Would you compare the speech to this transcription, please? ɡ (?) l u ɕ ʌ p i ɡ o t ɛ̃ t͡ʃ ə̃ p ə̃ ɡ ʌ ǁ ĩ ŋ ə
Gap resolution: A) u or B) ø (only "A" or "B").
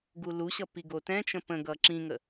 A